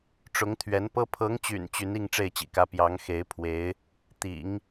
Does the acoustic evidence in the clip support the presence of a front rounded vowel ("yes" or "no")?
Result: yes